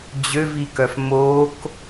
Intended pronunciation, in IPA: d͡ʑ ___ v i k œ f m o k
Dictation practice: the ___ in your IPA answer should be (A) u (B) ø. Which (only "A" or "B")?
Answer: B